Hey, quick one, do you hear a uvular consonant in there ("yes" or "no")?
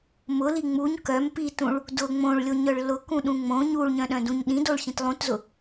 no